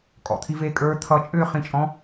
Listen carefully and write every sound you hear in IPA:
kʼ ɔ̰ t̪ʰ i v e kʼ ə˞ t̪ʰ ʌ t͡ʃʼ ʏː χ ĩ t͡ʃʼ ɔ̃

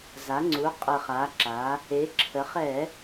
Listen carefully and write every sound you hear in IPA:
z a˩˧ ŋ͡ǀ u˩˧ qʼ ə˨˩ χ a˩˧ ǁ a˩˧ | e˩˧ ǁʰ ə˩˧ χ ɛ˧˩˧

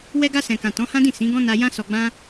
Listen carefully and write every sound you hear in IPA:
w ɛ˧ ɡ a˧ s ɛ̃˨ k ã˨ t ɔ̃˨˦ h ã˦ d ĩ˦˨ s ĩ˨˦ ɡ ɔ̃˦ n a˧ j ã˦ s ɔ˧ ɡ͡b ã˦

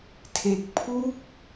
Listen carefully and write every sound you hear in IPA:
tʰ e˨˩ k̚ pʰ u˥˩ k̚

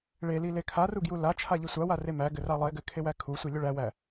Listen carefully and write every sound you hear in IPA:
ɭ e l i l e kʰ a r u ɡ j u l a t͡ʃʰ a ʎ i sʷ a w a r e m æ ɡ ɘ r a lˠ e ɡ ɘ kʰ e w æ kʰ u sʷ i lʲ ʊ ɭ æ w æ

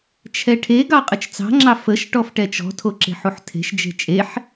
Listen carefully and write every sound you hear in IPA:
t͡ʃʰ ɛ ʈʰ e ɡ ɑ qʼ ə t͡ʃ t͡s ɑ̤ ŋ͡ǁ ɑ f ə ʃ ʈ ɔ f ʈ ɛ t͡ʃ ɔ̤ tʰ o ǁ e̤ ħ u ħ tʰ e̤ ʃ d͡ʒ e̤ t͡ʃʼ e ħ

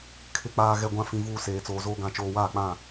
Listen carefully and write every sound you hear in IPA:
kʰ ɪ˨ k͡p aː˨ ɣ ɛ˨ ɡʷ ã˨ f ĩ˨ v uː˨ s eː˨ t͡s oː˨ z oː˦ ɡ ã˨ t͡ʃ oː˨ w aː˦˨ k͡p ã˦˨

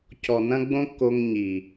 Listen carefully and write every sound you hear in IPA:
c ɔ˨ n ɐ̃˦ ɡ͡b õ˦ kː o˧ ŋ ɲ i˨

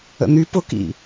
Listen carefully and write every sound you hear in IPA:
ə̰ n̪ y p ʊ k ḭ

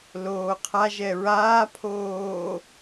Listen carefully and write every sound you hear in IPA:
l oː qʰ a ʒ ɛ ɹ aː pʰ oː

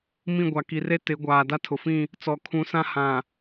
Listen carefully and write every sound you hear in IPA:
m ĩ˦˨ ɡʷ a˨ k i˨ r e˦ t ɪ˨˦ ɡʷ aː˨ d a˦ tʰ ʊ˨ f ĩ˦˨ | t͡s ɔ˨ kʰ ũ˨˦ s ã˦ h ã˨

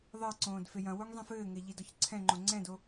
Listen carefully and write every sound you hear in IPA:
ðˤ ɛ ǀ õː d f e j ɐ̃ w o ŋ zˤ ẽ f ɘː ŋ ɛ ʎ i d ɔ ç ǀʰ ɛ̃ ŋ͡ǃ õ ŋ͡ǀ ɛ̃ d o

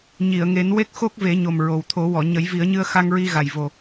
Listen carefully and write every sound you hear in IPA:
ɲ i˨˩˨ ə̯ ŋ e˨˩˦ n w e˦˥ k̚ x o˦˥ k̚ v e˨˩˦ ɲ o˨˩ m ɹ o˨˩ w t̪ʰ o˨˩˦ w ɔ˨˩˨ ɲ ə˨˩˦ j v i˨˩˦ ə̯ ɲ ɨ˧ ə̯ x a˧ ŋ ɹ i˧ ɣ a˨˩ j v o˨˩

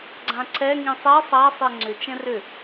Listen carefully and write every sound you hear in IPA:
ɡ͡ǀ ã ǀ ɛ ŋ ĩ sˤ ɛ sˤ a sˤ e ŋ͡ǀ ʏ t͡ʃ ɛ̃ r ʏ

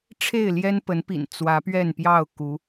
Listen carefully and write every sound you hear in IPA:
ʈ͡ʂʰ e˥˨ ɪ̯ l j ɛ˦ n p ə˨˦ n p ḭ˨˩ n t͡s w ä˨˦ p ɥ ɛ˥˨ n p j ɑ˥˨ ʊ̯ k u˨˦

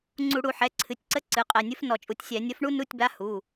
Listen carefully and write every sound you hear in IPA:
ŋ͡ǀ u˧˩˧ ɽ u˧˩˧ ħ ɛ˩˧˩ ǀʰ ɨ˩˧˩ tʲ ǀ ə˧˥˧ ǀ ɨ˩˧˩ qʼ ɛ˩˧˩ nʲ ɨ˧˥ f n ɔ˧˩˧ t͡ʃʼ u˩˧˩ tʲ sʲ ɛ˧˩˧ nʲ ə˧˥ f ɳ u˥ n u˧˥˧ tʲ b a˧˥˧ h u˩˧˩

